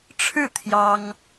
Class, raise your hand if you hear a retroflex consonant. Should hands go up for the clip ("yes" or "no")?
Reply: yes